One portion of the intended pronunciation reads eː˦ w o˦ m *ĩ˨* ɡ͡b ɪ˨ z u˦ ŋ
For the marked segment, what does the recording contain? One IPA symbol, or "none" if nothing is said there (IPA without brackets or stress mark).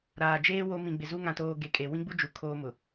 ĩ˨